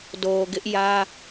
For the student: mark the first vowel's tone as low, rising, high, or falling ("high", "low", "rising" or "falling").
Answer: low